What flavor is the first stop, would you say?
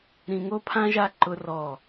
aspirated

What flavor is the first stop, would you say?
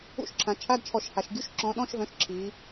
click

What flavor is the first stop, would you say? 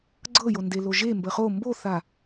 click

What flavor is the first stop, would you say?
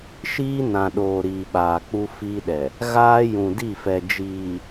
implosive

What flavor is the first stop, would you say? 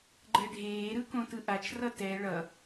click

